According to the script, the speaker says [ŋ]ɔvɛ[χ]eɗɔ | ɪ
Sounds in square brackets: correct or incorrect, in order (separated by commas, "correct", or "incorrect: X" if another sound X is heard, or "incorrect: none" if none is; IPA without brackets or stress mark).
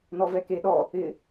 incorrect: n, incorrect: k